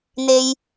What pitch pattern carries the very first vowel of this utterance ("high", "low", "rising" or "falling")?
low